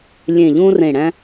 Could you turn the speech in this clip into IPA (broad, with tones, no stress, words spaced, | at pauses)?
lʲẽ˨˩ʎũ˧rẽ˨˩ ɽæ̃˧